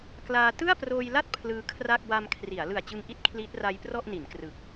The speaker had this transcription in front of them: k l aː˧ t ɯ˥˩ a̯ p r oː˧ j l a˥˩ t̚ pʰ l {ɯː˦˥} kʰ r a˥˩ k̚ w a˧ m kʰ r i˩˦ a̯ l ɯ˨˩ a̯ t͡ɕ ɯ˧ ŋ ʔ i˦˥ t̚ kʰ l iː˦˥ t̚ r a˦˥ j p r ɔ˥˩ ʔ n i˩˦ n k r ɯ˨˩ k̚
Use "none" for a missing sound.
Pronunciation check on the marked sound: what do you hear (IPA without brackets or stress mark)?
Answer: ɯː˦˥